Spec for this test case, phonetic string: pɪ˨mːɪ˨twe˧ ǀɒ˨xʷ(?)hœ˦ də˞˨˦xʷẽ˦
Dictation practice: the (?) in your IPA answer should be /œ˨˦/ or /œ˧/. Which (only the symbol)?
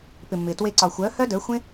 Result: œ˨˦